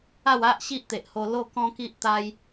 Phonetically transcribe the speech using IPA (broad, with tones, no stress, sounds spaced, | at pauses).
a˥˧ w a˦ ʔ ɕ i˦ ʔ t̪ e˨ ʔ h o˧ l o˥˧ k ɔ̃˦ k i˦ ʔ t̪ a˦ j